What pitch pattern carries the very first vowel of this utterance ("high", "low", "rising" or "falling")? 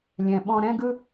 low